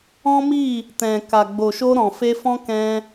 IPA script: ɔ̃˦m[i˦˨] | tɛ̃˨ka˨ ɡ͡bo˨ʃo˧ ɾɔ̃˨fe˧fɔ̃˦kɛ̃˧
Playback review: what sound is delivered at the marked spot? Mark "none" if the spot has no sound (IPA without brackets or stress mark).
i˦˨